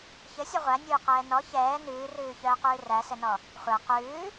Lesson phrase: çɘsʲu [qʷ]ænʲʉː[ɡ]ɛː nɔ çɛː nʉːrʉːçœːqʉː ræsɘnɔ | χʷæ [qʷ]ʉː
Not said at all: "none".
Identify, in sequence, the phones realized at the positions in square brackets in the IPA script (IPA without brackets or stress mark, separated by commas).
ʁʷ, q, q